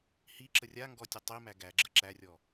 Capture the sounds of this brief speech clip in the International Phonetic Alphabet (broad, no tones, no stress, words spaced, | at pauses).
hiǁə rʲaŋɡɔ tʲətˤimæ ɡæɡ͡ǁə ǁærʲɔ